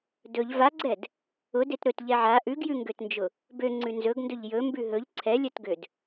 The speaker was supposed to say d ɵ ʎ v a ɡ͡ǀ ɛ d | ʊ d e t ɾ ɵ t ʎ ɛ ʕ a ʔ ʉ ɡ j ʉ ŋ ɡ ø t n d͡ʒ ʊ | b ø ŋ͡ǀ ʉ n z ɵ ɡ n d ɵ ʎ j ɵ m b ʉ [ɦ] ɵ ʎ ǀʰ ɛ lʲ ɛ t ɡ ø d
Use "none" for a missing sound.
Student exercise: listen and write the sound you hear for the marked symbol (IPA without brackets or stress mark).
ɦ